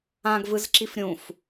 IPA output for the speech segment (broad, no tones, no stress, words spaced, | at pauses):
ãɡvɯzǁif ɾʲũf